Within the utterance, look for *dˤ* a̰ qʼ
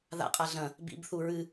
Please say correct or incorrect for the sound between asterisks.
incorrect